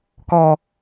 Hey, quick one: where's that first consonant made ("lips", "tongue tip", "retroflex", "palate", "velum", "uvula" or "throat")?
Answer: velum